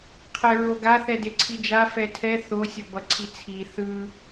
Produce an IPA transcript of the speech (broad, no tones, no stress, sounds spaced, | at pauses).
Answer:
qʰ ɛ ɹ o ɡ a θ ɛ d e ǀʰ i d͡ʒ a f ɛ tʰ ɛ θ o sʲ o b ʌ ǀʰ i t͡sʰ i θ ɯ